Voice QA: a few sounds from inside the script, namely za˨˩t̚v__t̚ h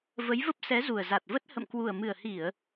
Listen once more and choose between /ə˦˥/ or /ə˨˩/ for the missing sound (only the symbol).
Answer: ə˦˥